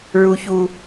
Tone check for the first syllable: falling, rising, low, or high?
high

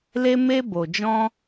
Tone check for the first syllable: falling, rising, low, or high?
high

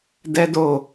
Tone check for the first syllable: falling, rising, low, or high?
high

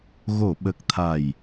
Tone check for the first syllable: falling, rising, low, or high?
low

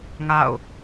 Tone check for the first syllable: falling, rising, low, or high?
falling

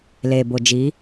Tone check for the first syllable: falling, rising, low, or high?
low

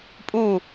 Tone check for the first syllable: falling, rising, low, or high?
falling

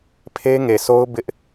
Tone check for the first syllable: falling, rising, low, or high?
high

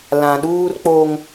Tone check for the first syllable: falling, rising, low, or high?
low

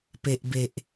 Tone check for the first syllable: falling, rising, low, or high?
low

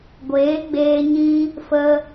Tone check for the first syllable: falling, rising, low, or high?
rising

